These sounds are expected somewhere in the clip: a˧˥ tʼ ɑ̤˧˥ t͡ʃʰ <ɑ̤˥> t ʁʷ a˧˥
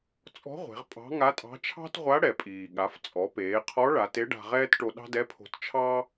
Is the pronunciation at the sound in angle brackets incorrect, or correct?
correct